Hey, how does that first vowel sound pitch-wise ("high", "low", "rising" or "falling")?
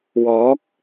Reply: rising